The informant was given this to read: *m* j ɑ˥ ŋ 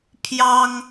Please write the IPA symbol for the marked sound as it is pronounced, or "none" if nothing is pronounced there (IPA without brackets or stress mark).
pʰ